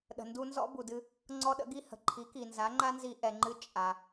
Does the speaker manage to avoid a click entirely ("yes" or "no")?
no